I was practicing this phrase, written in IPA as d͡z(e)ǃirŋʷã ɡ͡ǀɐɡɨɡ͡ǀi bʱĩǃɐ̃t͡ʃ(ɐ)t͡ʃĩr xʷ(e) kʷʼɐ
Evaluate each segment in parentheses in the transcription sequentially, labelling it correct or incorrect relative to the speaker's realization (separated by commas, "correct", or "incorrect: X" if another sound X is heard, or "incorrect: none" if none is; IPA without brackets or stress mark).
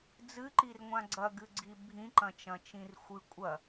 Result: incorrect: ɨ, incorrect: ɐ̃, incorrect: ɨ